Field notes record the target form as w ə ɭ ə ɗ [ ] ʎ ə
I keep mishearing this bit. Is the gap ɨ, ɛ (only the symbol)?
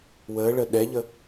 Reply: ɛ